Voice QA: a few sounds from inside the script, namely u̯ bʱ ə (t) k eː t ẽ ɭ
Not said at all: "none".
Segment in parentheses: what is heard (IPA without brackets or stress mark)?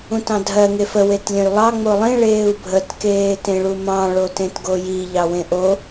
t